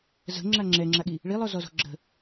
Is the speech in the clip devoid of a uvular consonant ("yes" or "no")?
yes